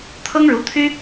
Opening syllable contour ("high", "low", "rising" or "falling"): high